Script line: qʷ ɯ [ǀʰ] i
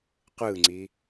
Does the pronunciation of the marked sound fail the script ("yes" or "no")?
yes